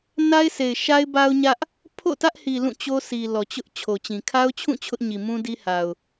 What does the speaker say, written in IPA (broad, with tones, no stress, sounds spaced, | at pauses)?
n a˦ ɪ̯ s e˨ ɪ̯ ʃ a˦ ɪ̯ b a˦ ʊ̯ ɲ ä˦ ʔ | pʰ o̰˦˨ t ä˦ ʔ h i˨ l ũ˦˨ t͡ɕ o˦ s i˨ l ɔ˨ t͡ɕ ʊ˦ ʔ t͡ɕʰ o˨ t͡ɕ ĩ˨ kʰ a˦ ʊ̯ t͡ɕʰ ũ˦˨ t͡ɕʰ ʊ˦ ʔ ɲ i˨ m ũ˦ d i˦ h a˨ ʊ̯